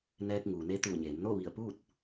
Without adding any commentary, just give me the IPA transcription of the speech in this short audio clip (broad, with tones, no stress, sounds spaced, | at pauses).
n ɛː˧ k̚ ŋ uː˩ n e˧˥ t̪ uː˧˩ ɲ eː˩˧ m n o˥˨ ʋ i˧˩ ə̯ p uː˥˨ t̚